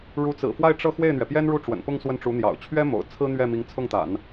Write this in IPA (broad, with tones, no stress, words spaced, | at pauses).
ɻu˧˥t͡sɹ̩˨˩fwa˥˧ɪ̯ ʈ͡ʂɤ˥˧ xwe˥˩ɪ̯n̪ɥɛ˩pjɛ˥nɻu˥˩ ʈ͡ʂwə̰˨˩npʊ˥˧ŋ swə˥˩nʈ͡ʂu˧˥n̪jɑ̰˨˩ʊ̯ t͡ɕʰɥɛ˥mo̰˨˩ʊ̯ t͡sʰɹ̩˥n̪ɥɛ˥˩ mi˧˥ŋt͡sʰʊ˥˩ŋt̪a̰˨˩˦n